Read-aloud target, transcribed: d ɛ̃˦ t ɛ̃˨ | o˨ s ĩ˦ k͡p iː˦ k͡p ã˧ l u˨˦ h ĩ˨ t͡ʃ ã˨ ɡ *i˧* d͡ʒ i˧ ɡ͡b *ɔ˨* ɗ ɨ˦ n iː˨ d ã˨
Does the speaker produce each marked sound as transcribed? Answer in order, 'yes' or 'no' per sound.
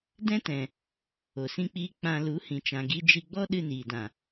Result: yes, no

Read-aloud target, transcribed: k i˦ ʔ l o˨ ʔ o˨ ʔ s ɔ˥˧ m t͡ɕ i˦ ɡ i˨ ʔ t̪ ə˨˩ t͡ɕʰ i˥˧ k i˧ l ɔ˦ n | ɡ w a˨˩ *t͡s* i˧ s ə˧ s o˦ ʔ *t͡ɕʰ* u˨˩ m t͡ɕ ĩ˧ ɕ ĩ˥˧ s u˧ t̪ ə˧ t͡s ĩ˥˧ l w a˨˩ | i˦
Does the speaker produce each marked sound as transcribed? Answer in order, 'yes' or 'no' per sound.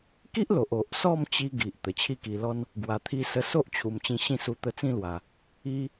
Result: no, yes

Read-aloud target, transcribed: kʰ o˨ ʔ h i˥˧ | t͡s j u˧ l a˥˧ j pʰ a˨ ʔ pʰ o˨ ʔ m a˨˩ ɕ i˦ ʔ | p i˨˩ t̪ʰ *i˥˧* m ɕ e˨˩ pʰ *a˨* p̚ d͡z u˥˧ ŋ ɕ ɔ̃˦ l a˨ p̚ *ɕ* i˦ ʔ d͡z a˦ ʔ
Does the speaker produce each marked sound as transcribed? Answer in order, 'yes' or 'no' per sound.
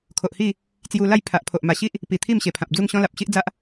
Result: yes, no, yes

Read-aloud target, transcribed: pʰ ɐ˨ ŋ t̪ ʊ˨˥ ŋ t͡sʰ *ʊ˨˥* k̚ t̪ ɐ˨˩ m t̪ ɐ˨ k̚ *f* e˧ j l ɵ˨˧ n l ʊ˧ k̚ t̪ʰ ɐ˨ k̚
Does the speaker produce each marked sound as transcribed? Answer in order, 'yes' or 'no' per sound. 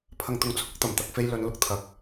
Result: no, yes

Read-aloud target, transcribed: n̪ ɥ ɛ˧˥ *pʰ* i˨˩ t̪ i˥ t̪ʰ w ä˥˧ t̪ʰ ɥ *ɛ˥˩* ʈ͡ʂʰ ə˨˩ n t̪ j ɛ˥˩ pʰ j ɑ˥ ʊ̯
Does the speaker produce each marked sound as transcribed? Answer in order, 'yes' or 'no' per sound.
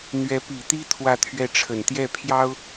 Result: no, yes

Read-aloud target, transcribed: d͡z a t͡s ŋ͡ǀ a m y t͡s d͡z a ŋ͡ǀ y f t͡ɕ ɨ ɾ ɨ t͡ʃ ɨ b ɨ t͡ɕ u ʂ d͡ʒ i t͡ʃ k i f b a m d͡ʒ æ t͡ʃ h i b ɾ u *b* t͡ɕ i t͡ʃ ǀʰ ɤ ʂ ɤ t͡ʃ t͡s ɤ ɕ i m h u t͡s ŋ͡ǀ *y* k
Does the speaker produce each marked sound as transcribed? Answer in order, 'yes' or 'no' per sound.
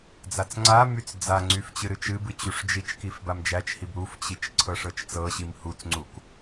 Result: no, no

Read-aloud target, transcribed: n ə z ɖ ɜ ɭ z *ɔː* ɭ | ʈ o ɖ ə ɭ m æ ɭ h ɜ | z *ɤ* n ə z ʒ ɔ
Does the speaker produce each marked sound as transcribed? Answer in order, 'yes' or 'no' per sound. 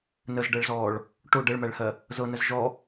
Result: yes, yes

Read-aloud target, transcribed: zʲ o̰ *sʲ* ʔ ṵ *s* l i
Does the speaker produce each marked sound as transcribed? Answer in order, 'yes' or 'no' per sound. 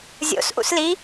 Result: no, yes

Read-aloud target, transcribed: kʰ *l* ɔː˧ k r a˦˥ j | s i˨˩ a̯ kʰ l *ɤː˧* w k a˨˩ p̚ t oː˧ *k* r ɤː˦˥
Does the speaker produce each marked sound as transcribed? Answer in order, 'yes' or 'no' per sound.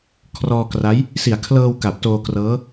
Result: no, yes, yes

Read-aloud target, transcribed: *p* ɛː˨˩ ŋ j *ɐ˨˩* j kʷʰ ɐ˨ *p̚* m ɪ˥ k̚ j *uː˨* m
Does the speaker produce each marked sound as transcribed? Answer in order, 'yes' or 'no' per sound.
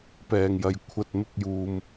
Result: yes, yes, no, yes

